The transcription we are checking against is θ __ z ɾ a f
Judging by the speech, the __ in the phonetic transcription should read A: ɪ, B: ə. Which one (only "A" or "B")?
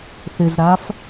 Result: A